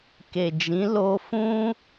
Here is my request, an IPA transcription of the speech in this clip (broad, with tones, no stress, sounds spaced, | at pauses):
k e˨ d͡ʒ ĩ˨˦ l o˧ f ũ˦